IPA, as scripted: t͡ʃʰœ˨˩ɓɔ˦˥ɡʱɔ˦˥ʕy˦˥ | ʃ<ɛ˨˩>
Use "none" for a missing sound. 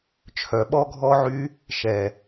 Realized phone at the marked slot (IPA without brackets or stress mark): ɛ˨˩